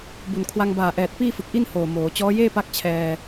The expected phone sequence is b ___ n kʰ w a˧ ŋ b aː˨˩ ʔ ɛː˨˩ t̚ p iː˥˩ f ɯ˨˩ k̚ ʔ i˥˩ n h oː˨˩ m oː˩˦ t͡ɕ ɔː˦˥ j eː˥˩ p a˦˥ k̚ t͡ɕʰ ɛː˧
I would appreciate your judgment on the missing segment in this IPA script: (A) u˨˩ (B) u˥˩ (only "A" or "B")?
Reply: A